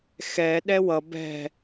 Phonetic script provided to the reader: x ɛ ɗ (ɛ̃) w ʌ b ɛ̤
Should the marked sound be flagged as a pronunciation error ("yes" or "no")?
yes